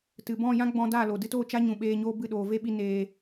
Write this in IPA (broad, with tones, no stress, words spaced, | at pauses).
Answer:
tɨ˨bɔ̃˦˨jã˦ ɡ͡bɔ̃˧daː˦˨lo˨ dɨ˧toː˦˨ t͡ʃa˦ɲũ˨ɓeː˧ɲoː˧ bɨ˦˨ɗoː˨ve˦ɓi˧ neː˧